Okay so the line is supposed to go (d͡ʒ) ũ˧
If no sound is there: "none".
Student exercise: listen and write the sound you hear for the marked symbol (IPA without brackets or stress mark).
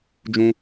d͡ʒ